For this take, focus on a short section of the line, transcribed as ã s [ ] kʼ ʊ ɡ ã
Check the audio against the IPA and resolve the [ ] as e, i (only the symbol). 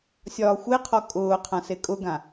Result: e